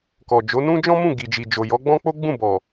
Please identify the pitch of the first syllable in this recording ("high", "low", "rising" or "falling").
low